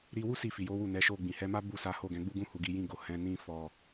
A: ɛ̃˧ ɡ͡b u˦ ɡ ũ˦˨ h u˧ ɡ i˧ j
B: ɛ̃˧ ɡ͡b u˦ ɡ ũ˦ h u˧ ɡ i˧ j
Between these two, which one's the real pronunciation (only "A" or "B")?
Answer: B